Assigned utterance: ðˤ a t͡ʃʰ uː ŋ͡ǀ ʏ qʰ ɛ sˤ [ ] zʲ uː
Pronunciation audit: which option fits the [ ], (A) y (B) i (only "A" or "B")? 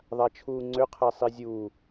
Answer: B